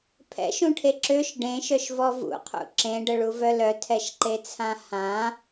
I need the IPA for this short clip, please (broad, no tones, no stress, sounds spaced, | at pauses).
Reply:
pʰ ɛ̰ ʃ ũ ʈʰ e ǁ ø ʃ ɖ ẽ ʃ œ ʃ v ɔ v ṵ qʰ ṵ ǁ ẽ ɖ ə ɭ u v œ l œ tʰ ɛ ʃ ǃ e t͡sʰ ã h ã